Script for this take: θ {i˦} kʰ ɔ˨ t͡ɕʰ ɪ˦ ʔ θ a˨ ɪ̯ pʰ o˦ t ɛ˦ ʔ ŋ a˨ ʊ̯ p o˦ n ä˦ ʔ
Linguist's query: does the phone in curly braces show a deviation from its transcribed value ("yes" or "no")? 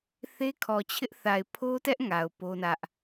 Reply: yes